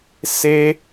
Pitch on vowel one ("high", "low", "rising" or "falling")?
high